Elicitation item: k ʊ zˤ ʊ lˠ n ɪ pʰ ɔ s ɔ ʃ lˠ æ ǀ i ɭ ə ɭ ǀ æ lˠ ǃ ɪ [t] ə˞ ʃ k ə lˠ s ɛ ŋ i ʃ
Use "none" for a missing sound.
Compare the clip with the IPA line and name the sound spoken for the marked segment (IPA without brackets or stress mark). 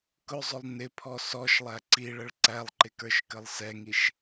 k